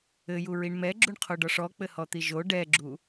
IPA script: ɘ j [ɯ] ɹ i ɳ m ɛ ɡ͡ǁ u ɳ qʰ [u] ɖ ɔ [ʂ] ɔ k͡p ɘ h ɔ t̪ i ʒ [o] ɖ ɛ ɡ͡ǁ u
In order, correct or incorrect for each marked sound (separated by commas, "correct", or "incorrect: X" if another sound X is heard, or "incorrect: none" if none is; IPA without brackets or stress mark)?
incorrect: u, incorrect: o, correct, correct